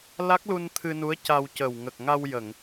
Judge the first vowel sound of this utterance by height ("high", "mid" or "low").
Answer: low